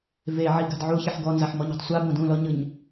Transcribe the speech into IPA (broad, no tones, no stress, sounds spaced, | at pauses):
v e ʕ i ɡ a̤ d ʕ u ç i ħ ɡ ɔ n z a ħ m ɔ ɲ e̤ tˤ sʷ a b õ d ũ l ɔ ɲ ɯ ɲ